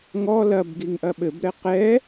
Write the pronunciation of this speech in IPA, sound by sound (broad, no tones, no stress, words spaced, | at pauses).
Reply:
ŋɔ lɐbɡiŋ ʔɐɓɘbɾɛ qɛ